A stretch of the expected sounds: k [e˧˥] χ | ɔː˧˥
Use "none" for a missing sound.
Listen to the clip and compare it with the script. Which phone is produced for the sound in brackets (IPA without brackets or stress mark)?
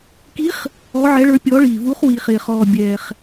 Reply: i˧˥